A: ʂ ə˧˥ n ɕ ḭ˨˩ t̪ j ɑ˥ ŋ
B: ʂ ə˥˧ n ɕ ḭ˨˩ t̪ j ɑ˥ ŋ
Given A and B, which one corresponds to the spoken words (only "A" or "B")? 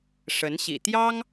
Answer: A